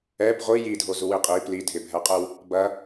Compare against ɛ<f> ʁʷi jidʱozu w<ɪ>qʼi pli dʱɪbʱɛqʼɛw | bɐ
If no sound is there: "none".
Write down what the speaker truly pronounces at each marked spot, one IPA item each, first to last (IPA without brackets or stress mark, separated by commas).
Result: b, i